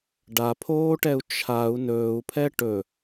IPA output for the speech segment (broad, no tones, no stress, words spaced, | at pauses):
ɖapʰoːʈɛu̯ t͡ʃʰau̯ nɵːu̯pʰɛ ʈɵ